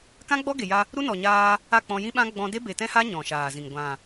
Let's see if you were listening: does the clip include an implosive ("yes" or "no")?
yes